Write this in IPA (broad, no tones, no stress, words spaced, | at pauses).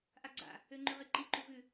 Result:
ʔaɡ͡ǀa̰ | øŋ͡ǃʉʁiǃi ǃuvʉ